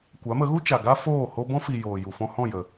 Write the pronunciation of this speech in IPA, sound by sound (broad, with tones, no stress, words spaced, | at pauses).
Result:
kʷa˨˦mə˨˦ɣu˦t͡ʃa˨ ɡa˦ foː˦˨ho˦ bɔ̃˦ fi˨ joː˨ju˨fɔ̃˧hɔ̃˦˨ jə˨